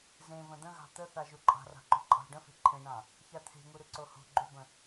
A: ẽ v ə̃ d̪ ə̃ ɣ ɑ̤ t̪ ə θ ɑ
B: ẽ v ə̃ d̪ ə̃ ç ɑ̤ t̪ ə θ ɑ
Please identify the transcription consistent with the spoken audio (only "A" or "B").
A